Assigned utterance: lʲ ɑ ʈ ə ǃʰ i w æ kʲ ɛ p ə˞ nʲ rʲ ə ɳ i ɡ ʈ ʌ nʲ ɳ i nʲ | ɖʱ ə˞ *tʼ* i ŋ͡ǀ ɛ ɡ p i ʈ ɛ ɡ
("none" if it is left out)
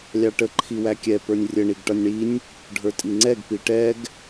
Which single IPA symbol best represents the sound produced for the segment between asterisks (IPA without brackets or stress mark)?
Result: tʼ